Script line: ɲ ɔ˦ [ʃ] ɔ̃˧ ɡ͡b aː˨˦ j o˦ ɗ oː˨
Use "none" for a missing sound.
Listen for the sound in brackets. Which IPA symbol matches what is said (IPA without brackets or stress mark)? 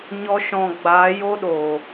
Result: ʃ